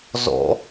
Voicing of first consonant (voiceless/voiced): voiced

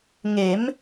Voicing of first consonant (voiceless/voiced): voiced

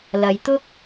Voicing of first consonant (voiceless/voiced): voiced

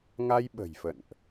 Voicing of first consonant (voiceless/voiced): voiced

